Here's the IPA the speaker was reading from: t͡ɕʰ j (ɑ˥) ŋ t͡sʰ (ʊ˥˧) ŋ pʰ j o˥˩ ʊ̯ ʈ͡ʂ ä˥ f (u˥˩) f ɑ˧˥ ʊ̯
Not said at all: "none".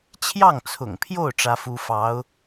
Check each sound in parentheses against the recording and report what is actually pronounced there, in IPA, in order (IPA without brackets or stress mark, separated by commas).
ɑ˥˩, ʊ̰˨˩, u˥